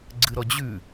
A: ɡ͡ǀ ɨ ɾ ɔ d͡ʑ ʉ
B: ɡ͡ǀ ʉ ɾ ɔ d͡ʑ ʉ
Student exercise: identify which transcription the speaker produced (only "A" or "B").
A